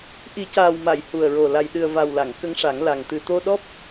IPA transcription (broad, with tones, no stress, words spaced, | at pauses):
ʔi˨˩˦caː˨˩wma˨˩˨j hu˨˩ə̯ɹo˨˩ la˨˩jɗɨ˨˩ə̯va˨˩wla˨˩˨ŋ kə˧˥ŋʂa˨˩˦ŋla˨˩ŋ t̪ɨ˨˩t̪o˧ɗɔ˦˥p̚